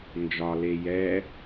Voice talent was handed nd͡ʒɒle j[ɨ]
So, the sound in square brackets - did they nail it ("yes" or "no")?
no